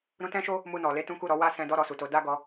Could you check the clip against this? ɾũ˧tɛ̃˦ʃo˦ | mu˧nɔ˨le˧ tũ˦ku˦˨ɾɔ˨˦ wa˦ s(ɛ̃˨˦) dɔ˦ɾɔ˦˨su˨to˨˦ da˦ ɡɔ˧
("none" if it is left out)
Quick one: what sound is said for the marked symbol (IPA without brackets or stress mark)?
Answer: ɛ̃˧